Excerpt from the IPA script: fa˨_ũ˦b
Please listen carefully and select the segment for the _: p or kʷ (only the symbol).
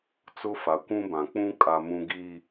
kʷ